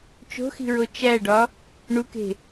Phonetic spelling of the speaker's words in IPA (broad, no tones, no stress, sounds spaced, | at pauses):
t͡ʃ o̤ x i̤ ɹ o t͡ʃ æ ɖ ɒ | ɳ u k e̤